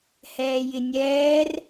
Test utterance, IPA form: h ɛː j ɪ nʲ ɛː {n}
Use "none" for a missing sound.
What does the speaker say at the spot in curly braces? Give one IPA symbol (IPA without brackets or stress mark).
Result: r